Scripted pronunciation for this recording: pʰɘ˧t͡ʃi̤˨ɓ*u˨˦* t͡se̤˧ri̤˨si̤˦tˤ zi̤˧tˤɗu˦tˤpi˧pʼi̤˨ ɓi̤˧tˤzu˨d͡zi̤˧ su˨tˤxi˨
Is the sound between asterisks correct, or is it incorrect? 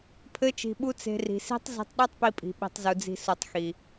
incorrect: u˧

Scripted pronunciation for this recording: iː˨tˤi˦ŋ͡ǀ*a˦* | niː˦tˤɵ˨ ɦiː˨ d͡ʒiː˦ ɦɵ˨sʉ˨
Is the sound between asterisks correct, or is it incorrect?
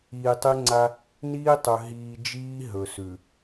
correct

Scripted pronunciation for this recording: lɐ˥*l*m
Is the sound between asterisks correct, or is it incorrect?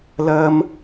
incorrect: none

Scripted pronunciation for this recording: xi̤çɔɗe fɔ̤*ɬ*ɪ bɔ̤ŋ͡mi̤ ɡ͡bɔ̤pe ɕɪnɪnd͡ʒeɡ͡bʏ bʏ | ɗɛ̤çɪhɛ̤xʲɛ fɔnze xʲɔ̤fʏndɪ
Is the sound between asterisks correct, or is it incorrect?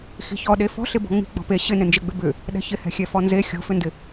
correct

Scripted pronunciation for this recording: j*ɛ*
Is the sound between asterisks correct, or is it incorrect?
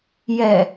correct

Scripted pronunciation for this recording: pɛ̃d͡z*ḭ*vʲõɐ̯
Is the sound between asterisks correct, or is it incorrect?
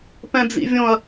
correct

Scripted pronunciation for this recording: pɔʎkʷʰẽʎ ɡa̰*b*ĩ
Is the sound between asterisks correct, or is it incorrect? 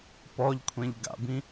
correct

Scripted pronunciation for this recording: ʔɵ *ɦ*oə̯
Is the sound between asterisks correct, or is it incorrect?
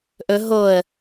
correct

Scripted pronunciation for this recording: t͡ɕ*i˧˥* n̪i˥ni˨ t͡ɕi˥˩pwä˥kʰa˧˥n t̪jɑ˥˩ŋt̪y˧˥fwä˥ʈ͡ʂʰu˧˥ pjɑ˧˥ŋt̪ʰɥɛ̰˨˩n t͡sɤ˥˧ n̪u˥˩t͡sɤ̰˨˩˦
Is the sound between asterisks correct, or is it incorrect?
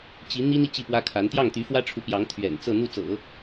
correct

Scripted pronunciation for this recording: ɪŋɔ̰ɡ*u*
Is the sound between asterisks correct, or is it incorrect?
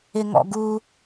correct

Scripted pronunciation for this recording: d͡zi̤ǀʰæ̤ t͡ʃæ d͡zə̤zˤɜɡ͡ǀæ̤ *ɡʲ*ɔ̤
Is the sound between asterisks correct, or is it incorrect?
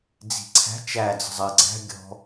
correct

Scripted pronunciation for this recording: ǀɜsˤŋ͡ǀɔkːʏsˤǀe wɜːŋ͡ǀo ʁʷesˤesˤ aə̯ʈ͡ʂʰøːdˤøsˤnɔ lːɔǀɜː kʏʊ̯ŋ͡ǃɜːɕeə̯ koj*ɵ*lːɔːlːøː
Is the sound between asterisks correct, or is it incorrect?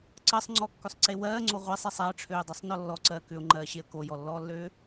incorrect: ɔ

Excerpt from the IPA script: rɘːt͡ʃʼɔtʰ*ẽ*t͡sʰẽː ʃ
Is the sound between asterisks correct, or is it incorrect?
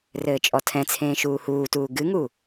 incorrect: ɛ̃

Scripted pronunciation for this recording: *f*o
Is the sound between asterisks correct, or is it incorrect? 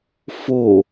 correct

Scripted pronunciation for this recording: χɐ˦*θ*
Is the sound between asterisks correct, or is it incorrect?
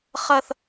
correct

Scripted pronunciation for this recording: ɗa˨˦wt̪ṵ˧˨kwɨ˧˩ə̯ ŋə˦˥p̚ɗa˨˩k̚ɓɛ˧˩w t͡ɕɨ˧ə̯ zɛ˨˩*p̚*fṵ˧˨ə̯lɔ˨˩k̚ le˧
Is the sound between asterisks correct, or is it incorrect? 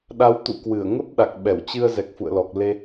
incorrect: k̚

